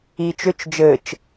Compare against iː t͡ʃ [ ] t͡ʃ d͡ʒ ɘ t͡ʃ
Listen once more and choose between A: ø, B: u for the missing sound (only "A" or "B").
A